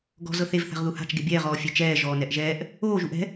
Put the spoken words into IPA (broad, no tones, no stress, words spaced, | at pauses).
ɡɔ̤ zɤθev θa̤ʁðuha̤t͡ʃ ɡebʲɛːʁ ɔːfʲet͡ʃɛː ʒɔːnɛʔʒɛːʔ | oː ʒuʔɛ̤